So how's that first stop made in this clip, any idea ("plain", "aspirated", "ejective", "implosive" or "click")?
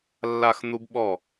plain